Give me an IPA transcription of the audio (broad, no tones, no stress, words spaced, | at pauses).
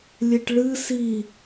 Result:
lʲeʈɭɨ si